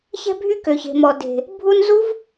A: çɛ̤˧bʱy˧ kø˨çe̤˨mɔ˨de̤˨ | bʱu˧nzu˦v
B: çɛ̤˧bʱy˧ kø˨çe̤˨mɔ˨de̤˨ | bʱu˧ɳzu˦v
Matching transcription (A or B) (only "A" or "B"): A